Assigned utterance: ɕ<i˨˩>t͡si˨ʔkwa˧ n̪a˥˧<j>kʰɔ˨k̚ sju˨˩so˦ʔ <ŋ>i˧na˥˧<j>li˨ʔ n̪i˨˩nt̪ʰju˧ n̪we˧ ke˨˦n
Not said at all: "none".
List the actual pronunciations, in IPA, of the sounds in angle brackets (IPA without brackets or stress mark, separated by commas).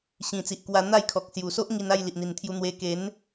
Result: ĩ˨˩, j, ŋ, j